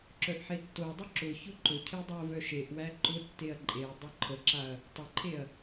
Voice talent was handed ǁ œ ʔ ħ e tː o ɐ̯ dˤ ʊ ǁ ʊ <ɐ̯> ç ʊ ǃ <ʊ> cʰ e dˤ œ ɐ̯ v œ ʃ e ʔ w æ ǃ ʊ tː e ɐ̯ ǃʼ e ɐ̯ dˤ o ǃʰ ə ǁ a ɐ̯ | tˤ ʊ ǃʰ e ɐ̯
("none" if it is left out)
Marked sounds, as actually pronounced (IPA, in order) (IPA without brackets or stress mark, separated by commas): none, ʊ